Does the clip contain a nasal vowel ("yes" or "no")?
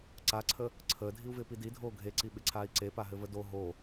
no